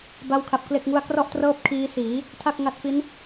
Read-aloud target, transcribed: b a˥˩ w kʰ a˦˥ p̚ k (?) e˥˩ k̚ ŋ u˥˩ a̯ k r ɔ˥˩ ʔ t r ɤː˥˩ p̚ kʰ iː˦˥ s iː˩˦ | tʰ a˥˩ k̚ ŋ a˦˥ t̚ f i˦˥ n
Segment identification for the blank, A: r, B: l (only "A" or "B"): B